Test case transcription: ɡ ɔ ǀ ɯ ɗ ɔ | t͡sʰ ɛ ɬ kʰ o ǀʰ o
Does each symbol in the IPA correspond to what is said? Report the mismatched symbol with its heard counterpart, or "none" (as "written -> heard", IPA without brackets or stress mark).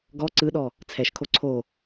ɬ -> ʃ